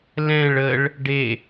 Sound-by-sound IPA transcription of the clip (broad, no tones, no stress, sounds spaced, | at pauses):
l ɛ̃ ɭ ə ɭ | ɖ e